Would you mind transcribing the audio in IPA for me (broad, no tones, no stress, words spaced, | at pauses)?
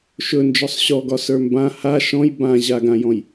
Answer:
ʃɵ nd͡ʒɔsˤɕɔɡɒ sə˞mbã ha ʃɔ̃j bãʑaɡãjɔ̃j